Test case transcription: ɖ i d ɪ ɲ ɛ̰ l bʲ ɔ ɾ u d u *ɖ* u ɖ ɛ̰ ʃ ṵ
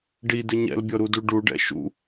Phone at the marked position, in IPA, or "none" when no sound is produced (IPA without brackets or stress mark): ɖ